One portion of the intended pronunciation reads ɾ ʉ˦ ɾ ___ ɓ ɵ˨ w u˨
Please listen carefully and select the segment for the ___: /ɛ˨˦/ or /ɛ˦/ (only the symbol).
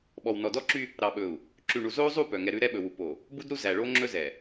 ɛ˦